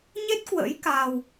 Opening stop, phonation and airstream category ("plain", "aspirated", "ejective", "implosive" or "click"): plain